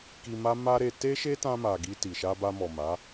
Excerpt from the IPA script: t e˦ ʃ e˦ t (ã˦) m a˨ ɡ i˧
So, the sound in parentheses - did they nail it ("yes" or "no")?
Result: no